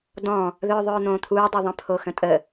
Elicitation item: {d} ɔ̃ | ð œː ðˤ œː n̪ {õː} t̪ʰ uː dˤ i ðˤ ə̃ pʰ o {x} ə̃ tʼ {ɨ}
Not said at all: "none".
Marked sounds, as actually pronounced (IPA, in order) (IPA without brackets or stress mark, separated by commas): d, õː, x, ə